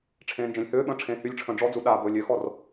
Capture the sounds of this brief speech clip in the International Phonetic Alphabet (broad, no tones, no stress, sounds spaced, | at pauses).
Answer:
ʈ͡ʂʰ ẽː n d͡ʒ ẽ lʲ h øː ɓ ə̃ː ʈ͡ʂʰ ẽː h y lʲ ʈ͡ʂʰ ə̃ː ɖ͡ʐ ɔ d͡z u ɗ a b ɵː lʲ ø x ɔ r